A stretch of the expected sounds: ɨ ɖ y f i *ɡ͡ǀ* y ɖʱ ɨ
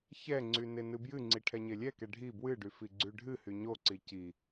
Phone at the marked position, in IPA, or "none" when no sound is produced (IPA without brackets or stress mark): ɡ͡ǀ